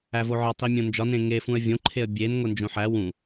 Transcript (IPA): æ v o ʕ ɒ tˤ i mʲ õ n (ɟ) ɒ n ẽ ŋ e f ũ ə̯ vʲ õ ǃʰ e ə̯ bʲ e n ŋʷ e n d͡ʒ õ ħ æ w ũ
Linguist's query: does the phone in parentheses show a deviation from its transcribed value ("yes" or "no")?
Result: yes